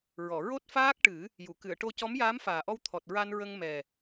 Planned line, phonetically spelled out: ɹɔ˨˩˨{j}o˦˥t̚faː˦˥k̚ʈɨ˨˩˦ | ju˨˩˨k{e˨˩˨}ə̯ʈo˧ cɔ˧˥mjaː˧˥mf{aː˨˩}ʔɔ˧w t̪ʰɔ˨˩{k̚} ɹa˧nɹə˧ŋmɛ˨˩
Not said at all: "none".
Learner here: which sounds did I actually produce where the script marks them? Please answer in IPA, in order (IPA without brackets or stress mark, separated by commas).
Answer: ɹ, ɨ˨˩˨, aː˨˩, t̚